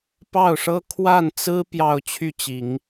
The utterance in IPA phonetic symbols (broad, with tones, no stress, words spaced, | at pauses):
pɑ˥˩ʊ̯ʂɤ˥ kʰwa˥˩nt͡sɹ̩˥ pjɑ˥˧ʊ̯t͡ɕʰy˥˩t͡ɕi˨˩˦ŋ